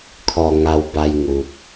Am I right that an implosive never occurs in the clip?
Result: yes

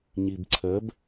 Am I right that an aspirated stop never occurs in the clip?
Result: no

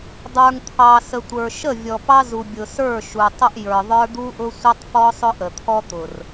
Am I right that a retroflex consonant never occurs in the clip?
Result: yes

